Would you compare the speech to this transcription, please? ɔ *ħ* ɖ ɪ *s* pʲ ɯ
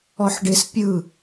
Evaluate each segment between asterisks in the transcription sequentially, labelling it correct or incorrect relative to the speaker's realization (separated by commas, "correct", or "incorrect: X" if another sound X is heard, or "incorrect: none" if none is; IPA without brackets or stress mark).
correct, correct